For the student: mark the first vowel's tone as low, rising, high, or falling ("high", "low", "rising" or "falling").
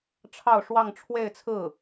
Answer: falling